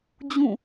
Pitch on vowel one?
falling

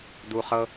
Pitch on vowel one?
low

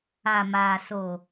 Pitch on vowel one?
low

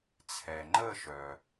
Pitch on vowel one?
low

